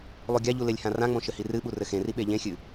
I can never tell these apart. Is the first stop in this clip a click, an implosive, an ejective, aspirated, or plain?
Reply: plain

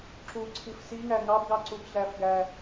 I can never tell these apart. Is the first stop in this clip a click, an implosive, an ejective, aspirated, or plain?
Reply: click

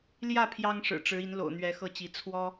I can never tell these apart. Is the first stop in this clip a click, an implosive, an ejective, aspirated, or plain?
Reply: aspirated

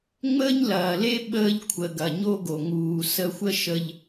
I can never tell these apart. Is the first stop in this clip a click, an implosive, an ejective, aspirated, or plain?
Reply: implosive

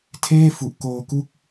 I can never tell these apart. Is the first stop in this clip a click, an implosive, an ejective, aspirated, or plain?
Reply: aspirated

